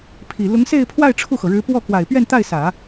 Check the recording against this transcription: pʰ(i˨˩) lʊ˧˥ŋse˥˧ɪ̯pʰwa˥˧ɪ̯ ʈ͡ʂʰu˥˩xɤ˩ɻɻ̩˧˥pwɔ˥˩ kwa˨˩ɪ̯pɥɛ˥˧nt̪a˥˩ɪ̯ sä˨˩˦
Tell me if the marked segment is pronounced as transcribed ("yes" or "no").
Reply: yes